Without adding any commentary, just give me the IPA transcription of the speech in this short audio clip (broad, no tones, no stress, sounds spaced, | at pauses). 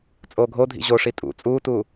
t͡sʼ oː ɡʱ o dʱ ḭ ʑ o ʂ i tʼ ṵ t͡sʼ uː t uː